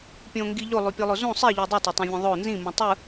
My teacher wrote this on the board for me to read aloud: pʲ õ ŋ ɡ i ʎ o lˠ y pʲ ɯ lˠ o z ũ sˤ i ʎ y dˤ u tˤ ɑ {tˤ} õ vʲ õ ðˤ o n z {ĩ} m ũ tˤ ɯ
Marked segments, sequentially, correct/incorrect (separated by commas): correct, correct